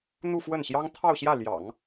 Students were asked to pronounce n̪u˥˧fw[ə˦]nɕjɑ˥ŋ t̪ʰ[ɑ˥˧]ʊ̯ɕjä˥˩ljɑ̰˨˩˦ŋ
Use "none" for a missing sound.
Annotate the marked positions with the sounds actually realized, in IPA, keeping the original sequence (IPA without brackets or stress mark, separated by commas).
ə˥˩, ɑ˥˧